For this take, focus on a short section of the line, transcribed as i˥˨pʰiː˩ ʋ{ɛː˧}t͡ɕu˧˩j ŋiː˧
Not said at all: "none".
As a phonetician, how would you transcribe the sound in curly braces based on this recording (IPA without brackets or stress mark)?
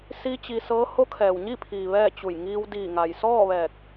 ɛː˥˨